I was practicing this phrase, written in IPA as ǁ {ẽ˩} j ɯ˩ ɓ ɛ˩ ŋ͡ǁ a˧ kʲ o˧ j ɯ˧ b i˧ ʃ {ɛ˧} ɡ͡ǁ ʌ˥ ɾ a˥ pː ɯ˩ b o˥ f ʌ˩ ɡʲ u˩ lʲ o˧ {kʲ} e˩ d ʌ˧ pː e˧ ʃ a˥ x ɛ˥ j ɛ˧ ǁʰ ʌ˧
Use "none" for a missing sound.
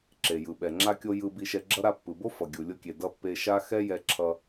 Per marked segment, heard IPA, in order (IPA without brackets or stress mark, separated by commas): e˩, ɛ˧, kʲ